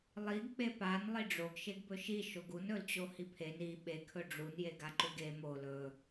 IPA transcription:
lˠ i ɡ k͡p e p a n lˠ i ɖ͡ʐ o ɡ ʃ e ɡ b ɵ ʃ i ʃ o ɡ u n ɵ l t͡ɕ o h i pʰ e n i ɓ e kʰ ɵ ɖ͡ʐ u n j e ɡ a ǃ u ɡ e m o l ɵ

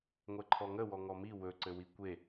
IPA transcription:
ŋʷ ɛ ǃʰ ɔ ŋ ə w ɔ ŋ ɔ m i w ɵ ǀ ɘ w i kʷ e

